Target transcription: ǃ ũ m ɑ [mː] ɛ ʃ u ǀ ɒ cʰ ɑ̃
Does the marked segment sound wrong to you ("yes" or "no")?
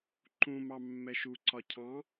no